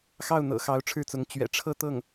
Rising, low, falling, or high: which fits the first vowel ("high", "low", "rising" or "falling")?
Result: falling